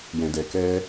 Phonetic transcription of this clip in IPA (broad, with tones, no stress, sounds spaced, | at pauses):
j ɛ̃˧ d ɛ˧ k ɛː˦